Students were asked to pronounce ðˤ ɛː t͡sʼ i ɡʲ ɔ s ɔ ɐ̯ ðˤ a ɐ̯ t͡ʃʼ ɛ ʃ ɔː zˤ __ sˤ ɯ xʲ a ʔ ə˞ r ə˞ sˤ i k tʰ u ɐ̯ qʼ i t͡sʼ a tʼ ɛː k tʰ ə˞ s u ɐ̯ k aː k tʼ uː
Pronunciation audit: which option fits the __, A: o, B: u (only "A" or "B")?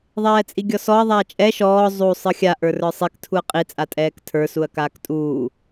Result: B